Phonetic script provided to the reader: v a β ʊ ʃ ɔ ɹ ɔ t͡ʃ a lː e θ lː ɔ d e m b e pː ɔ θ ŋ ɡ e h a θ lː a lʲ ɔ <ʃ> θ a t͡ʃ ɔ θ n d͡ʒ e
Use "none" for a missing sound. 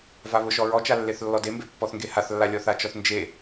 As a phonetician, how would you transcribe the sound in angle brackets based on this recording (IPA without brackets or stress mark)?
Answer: none